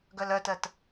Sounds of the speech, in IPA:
ɡ œ l œ t ɜ t

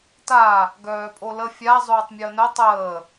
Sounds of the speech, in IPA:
t a | ɡ œː pʼ o l ə fʲ a zˤ oː tˤ mʲ əː n œ tˤ əː

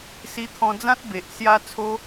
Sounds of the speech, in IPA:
s i˧ t̪ʰ ɔ̃˧ d͡z ã˦ t̚ b e˨ ʔ s j a˦ t͡sʰ o˦

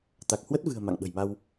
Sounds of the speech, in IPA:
t̪ a˨˩ k̚ h w ə˦˥ t̚ v ɨ̤˨˩ ə̯ m a̰˧˨ ŋ ɓ ə̤˨˩ j m a˧ w

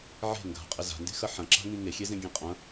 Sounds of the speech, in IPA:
ʕ e̤ ŋ ɡ a̤ qʼ ɪ z a̤ n d e̤ x ɐ ħ ɐ̃ ǁ a̤ ŋ ĩ ŋ e xʲ e z ẽ ɡʲ ẽ qʼ ɐ̃

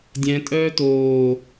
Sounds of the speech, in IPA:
dʲ ɛ̃ tʼ œː t oː

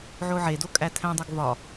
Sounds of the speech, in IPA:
ʕ o ʕ e d o kʼ æ tʰ æ̃ dˤ o ɡ v ɒ

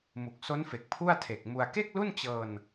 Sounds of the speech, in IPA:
m u˨˩ k̚ s o˦˥ n f e˨˩ k̚ pʰ u˥˩ a̯ tʰ e˨˩ k̚ m u˧ a̯ k e˥˩ k̚ l u˥˩ n t͡ɕ ɤː˧ n

